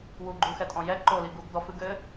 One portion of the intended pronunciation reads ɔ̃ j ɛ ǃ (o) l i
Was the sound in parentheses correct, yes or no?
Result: yes